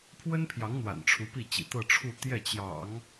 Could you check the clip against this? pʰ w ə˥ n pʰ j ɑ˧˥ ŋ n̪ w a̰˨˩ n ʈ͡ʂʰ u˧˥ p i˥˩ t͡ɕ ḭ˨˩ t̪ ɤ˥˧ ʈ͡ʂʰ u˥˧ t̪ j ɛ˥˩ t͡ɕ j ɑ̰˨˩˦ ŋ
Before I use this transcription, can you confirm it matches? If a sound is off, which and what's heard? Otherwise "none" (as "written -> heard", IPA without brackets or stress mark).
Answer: none